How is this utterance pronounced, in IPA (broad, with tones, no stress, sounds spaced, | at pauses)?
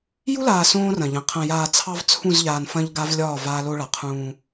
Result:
j u˦ l aː˨ s õː˦ r ɐ̃˨ ʎ ɐ̃˨ qʰ ɐ̃˨ j aː˨ t͡sʰ ɑ˦ v t͡sʰ ũ˦˨ z ʎ aː˨ n f ɐ̃˦ ʎ ɡ a˦ v lʲ ɒː˦˨ v aː˦ l o˦ ɭ a˨ qʰ ũː˦